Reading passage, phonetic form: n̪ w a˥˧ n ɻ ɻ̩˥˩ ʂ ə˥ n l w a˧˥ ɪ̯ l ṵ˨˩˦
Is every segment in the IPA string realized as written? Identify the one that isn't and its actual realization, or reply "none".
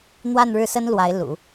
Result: ʂ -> s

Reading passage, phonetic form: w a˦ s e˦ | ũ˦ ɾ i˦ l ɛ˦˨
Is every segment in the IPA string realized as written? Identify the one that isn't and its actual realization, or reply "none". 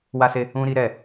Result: l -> ɾ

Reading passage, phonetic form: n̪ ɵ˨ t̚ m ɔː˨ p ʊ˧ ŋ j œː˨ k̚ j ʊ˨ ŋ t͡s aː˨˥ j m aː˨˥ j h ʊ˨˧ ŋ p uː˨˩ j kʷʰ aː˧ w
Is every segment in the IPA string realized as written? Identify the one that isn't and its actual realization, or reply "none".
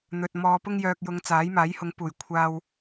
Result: none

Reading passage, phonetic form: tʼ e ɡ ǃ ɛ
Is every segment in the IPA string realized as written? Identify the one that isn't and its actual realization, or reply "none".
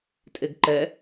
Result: none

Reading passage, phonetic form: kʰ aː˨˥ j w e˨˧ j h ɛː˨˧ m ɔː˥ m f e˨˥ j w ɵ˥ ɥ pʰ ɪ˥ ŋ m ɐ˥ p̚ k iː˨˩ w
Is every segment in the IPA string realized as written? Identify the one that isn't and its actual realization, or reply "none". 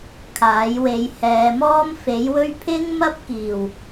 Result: none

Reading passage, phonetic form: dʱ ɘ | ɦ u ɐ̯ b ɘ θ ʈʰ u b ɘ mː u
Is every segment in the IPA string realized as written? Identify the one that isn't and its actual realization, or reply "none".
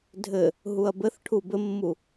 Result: none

